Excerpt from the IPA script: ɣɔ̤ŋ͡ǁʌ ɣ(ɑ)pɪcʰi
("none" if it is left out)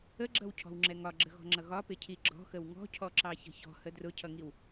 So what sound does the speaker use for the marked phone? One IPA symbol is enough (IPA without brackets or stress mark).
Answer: ɒ